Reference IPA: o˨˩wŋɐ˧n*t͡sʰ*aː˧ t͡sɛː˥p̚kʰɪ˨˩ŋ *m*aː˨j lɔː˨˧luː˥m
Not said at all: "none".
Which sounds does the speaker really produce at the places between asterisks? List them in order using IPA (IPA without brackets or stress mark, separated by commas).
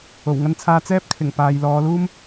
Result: t͡sʰ, p